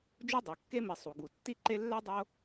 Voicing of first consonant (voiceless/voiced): voiced